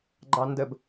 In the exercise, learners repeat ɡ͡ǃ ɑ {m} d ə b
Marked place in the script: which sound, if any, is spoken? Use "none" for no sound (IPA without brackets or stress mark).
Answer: n